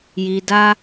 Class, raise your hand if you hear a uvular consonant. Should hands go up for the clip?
no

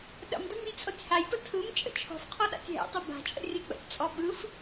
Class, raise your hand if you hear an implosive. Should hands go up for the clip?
yes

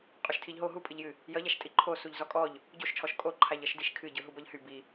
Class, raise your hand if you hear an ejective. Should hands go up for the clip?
yes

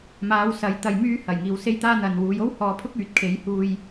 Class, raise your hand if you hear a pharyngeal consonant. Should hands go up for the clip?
no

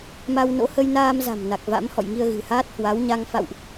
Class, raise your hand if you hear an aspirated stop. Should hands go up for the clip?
no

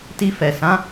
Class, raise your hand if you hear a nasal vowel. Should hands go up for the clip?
yes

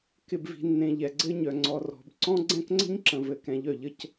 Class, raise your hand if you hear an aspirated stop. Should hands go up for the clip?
no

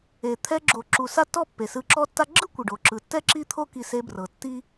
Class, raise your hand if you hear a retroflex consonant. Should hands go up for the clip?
yes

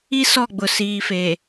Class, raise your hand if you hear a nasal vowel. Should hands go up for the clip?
no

